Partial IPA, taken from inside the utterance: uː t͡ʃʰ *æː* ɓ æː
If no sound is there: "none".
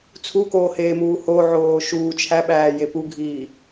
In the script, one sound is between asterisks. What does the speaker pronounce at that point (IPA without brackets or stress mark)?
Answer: æ